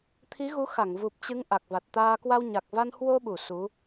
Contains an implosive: yes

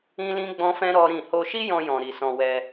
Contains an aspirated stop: no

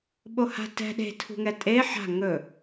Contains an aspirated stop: yes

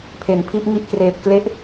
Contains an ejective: no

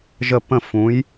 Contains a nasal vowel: yes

